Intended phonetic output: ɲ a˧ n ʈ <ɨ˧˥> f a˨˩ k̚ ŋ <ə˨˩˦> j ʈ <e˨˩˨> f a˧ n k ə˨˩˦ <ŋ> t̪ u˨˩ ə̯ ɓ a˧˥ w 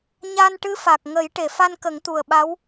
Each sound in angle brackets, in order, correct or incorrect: correct, correct, correct, correct

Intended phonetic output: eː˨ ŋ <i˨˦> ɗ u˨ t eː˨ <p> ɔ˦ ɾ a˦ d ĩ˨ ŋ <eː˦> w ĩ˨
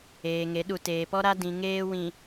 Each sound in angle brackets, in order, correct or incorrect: incorrect, correct, correct

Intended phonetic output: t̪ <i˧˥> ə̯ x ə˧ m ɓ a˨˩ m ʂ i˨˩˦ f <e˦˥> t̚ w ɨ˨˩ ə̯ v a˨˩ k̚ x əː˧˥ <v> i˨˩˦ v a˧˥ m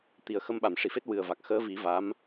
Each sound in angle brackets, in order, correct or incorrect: incorrect, correct, correct

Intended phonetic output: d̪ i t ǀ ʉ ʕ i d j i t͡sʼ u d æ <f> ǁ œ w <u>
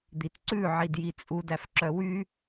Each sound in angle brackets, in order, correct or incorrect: correct, incorrect

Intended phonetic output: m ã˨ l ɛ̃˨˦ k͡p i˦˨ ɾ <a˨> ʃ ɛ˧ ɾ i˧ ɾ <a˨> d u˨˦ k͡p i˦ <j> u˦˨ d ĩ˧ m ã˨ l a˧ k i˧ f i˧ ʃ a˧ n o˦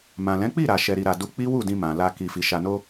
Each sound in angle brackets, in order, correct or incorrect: correct, correct, incorrect

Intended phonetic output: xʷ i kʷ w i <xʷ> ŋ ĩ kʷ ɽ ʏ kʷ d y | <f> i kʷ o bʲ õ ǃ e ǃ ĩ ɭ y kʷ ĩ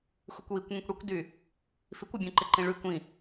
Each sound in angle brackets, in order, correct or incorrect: incorrect, correct

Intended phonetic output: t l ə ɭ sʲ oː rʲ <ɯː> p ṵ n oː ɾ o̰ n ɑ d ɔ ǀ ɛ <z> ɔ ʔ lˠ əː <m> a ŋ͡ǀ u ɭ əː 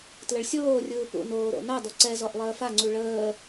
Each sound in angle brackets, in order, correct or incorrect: correct, correct, incorrect

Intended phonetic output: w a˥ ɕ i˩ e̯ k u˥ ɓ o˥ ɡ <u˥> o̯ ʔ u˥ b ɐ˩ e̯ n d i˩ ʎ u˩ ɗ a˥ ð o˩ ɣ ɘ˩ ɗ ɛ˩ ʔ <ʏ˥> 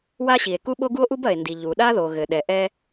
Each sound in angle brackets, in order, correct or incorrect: correct, incorrect

